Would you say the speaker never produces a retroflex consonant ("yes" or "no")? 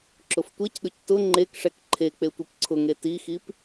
no